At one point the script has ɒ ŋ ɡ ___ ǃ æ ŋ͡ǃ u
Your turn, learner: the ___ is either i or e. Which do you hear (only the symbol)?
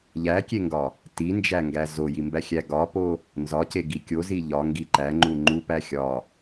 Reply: i